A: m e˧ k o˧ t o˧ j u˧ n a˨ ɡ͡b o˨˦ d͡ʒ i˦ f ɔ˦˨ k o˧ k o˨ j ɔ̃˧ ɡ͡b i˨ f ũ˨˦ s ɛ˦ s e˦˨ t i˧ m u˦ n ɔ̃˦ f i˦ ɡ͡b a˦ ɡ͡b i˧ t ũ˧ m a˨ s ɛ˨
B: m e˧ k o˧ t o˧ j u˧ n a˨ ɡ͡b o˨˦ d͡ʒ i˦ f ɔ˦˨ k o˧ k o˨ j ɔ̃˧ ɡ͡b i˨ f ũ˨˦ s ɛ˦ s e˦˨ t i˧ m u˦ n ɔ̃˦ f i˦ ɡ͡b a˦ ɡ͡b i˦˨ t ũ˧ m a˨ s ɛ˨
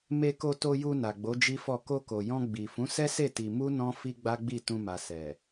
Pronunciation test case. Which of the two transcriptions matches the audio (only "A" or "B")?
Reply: B